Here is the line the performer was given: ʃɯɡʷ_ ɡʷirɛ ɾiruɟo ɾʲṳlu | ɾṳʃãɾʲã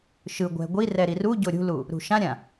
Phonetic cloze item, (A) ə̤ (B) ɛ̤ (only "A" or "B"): B